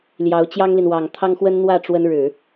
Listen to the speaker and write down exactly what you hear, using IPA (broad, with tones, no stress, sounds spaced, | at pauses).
l j ɑ˧˥ ʊ̯ t͡ɕ j ɑ˥ ŋ l i˨ n w ɑ˨˩ ŋ t̪ʰ ɑ˥ ŋ x w ə˥ n n̪ w ä˥˩ ʈ͡ʂ w ə˥ n ɻ ɻ̩˨˩˦